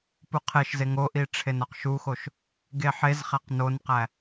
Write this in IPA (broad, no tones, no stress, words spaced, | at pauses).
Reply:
puqʰeʃze ŋoʔi ʈ͡ʂʰenɒqʃuxoʃ | ɡeħezχæq nonqæ